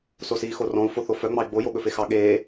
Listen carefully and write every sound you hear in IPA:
s o s iː x o r ɔ̃ u̯ f o θ o f œ ŋ͡m ɑ i̯ ɡ͡b o j o ɠ ɵ f e x ɑ ɠ eː

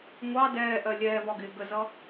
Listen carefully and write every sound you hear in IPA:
ŋʷ ɑ d ɛː ʔ ɜ lʲ ɛː v ɒ ɡ ɪː ɡ ə z ʌ

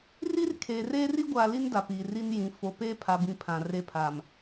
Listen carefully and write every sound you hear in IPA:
r i˦ r kʰ eː˨ r eː˦ r i˦ ɡʷ aː˨ l i˦ n d a˨ p iː˨ r iː˦ n j ĩ˨˦ f o˨ p eː˦ pʰ a˨ b ĩ˨ pʰ ã˨ r e˦ pʰ a˨ m

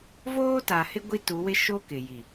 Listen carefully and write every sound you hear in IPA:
v oː˦ t a˨ h ɪ˦ ɡʷ i˦ t u˨˦ w ɪ˦ ʃ o˦ k ɪ˨ j i˨

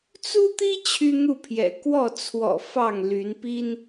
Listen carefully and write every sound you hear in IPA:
t͡s u˦ t̪ i˦ t͡ɕʰ y˦ n̪ u˥˨ pʰ j ɛ̰˨˩ k w ɔ˥˨ t͡sʰ w ɔ̰˨˩ f ɑ˥˨ ŋ l y˨˦ n p i˦ n

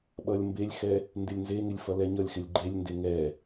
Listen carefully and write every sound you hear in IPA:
ɓ ʌ lʲ m b e lʲ x ɛ | n d ɪ lʲ n z e ŋ ɪ lʲ f ʌ l ɛ ɲ ʌ lʲ x ɪ lʲ ɡ͡ǃ e lʲ n d e ŋ ɛ

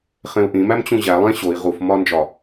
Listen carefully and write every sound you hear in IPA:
χ ẽ u̯ ʔ ĩ m æ m t͡ɕ ũ ʑ æ lˠ ẽ ɕ o i̯ ʁ u f m ɒ n d͡ʒ ɒ

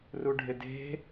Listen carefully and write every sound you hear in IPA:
r u ɖʱ ɪ d e̤

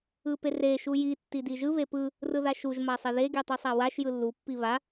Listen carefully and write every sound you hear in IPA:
ɯ p e r e ʃ u j i tː i d i ʒ ɯ β e p ɯ | r ɯ ð a ʃ u ʒ m a sˤ e ð e ɡ i tˤ ɯ sˤ a w a ʃ j ɯ lː u pː i β a

